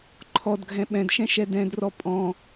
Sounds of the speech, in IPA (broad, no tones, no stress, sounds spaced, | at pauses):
ǃʰ ɔ d ɡʱ ɛ̃ ɓ ɛ̃ d ʃ ɛ̃ ʃ ɛ d ɛ̃ d r ɔ pʼ ɔ̃